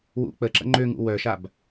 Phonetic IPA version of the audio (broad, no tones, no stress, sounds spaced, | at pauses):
w ṵ k͡p ə ǁ ə̰ ŋ͡ǃ ø ŋ ṵ w œ ʃ a b